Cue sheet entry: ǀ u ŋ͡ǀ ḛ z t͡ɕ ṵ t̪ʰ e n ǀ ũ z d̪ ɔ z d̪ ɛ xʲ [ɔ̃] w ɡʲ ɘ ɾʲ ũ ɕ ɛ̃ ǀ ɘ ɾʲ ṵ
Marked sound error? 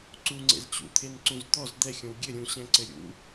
no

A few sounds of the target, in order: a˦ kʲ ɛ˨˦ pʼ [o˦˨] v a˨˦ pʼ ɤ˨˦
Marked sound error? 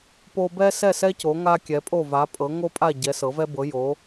no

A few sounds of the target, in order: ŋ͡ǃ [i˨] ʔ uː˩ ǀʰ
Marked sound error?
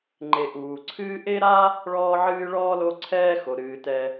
yes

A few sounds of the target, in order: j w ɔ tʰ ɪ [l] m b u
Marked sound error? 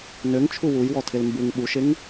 no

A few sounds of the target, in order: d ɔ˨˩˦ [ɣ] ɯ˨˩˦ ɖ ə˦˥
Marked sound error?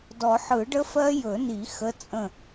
yes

